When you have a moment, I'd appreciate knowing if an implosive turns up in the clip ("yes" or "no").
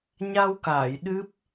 yes